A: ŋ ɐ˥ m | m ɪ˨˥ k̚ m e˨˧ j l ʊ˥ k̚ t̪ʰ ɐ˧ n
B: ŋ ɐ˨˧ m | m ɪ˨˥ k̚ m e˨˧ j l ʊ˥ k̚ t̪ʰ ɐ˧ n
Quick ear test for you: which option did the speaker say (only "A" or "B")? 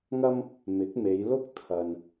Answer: A